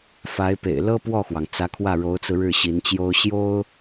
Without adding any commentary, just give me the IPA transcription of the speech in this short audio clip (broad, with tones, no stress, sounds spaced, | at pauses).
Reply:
f a˧˥ ɪ̯ p ḛ˨˩ ɪ̯ l ɤ˥ p w ɔ˥˩ x w ɑ˩ ŋ t͡s ä˧˥ kʰ w ä˥˩ ɻ o˧˥ ʊ̯ t͡s ɹ̩˧ ɻ ɻ̩˥˩ ɕ i˧˥ n t͡ɕ j o˥ ʊ̯ ɕ j o˥ ʊ̯